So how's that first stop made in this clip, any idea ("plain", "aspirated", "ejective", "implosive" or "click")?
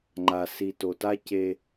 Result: click